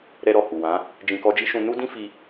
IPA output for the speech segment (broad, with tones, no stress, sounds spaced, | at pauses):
ɾ ɛ˧ ɾ ɔ˨ h u˨ w ã˨˦ | d͡ʒ ĩ˧ k ɔ˧ d͡ʒ i˦ ʃ ũ˧ n u˦ d ĩ˦ f i˧